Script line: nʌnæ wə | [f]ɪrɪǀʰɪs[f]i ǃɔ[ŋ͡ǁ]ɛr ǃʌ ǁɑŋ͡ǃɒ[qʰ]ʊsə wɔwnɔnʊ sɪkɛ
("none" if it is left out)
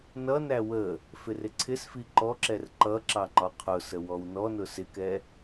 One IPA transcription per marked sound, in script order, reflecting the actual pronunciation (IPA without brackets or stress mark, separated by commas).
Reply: f, f, ǁ, qʰ